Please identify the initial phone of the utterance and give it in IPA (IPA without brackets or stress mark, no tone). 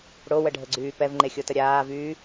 ɽ